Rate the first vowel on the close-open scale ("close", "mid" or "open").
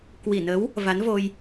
close